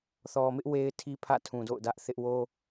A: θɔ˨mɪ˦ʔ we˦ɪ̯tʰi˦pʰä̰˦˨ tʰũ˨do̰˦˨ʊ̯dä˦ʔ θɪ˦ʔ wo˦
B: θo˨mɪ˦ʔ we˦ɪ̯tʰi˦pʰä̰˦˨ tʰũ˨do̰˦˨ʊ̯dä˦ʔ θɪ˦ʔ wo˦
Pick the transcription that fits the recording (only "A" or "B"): A